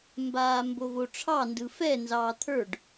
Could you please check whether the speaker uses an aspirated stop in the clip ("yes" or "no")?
yes